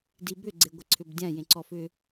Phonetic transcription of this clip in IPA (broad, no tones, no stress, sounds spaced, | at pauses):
d i b ʏ ɡ͡ǀ e ɡʷ ɪ ǀʰ ʏ b dʲ ã j ẽ ǀ ɔ f ʏ